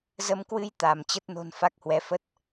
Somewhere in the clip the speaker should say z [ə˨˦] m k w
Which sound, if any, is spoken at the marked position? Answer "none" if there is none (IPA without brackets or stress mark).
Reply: ə˧